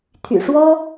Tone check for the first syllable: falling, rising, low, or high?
low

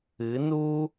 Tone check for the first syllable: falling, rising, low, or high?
rising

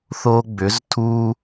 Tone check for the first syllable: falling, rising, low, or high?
high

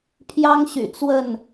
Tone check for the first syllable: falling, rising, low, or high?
high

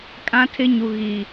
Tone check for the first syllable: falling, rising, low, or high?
high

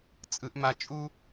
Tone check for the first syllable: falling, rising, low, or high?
low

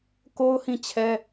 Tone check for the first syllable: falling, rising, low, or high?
high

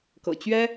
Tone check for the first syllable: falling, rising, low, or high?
low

